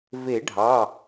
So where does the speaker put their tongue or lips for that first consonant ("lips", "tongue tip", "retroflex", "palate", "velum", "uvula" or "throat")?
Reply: lips